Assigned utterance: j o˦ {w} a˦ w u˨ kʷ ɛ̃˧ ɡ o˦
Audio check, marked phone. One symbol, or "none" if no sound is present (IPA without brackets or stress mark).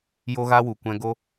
ɣ